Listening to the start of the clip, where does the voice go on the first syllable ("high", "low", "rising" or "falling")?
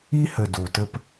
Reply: high